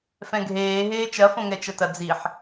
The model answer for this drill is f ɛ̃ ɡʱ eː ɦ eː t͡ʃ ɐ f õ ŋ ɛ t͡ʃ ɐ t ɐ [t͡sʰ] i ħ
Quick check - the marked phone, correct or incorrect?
incorrect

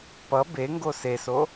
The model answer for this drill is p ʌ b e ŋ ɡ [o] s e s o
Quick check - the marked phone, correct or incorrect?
correct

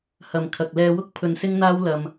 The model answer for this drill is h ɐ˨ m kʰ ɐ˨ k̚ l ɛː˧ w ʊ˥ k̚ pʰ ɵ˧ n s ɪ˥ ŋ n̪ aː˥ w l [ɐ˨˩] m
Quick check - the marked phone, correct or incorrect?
incorrect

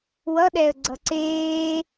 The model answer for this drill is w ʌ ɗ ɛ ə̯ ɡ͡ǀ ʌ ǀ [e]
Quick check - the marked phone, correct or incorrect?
incorrect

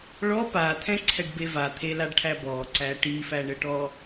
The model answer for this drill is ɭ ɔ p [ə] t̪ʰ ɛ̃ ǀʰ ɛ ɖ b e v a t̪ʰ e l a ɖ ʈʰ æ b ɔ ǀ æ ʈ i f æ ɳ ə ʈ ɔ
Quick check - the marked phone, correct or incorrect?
incorrect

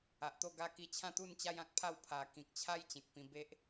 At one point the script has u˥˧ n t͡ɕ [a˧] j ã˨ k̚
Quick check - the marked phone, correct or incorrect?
incorrect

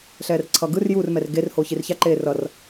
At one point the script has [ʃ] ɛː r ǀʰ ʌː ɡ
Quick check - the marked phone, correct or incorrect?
incorrect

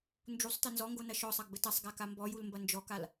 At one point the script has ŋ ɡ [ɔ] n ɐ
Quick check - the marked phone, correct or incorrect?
incorrect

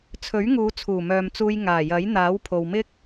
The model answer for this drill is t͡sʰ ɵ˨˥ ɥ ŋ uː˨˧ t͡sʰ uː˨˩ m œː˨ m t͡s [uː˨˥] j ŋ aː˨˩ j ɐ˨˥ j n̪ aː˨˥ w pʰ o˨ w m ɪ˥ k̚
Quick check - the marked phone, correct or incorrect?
incorrect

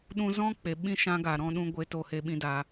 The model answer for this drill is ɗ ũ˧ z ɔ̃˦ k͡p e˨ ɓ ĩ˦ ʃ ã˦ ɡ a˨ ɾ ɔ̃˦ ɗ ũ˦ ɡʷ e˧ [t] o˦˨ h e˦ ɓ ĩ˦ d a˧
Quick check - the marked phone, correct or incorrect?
correct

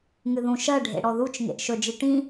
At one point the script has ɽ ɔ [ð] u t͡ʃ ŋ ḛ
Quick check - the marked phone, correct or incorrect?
correct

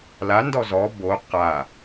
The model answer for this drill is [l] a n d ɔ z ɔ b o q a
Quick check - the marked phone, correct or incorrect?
correct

